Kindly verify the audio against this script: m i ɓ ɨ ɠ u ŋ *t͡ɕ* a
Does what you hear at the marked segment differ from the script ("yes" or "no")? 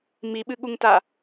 yes